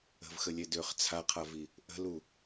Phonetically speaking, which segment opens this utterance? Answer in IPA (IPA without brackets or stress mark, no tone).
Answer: ə̤